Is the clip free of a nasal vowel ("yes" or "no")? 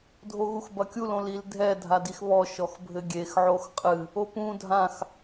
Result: no